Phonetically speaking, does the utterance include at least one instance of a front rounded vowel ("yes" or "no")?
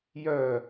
yes